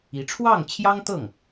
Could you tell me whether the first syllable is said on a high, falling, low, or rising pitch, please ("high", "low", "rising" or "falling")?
rising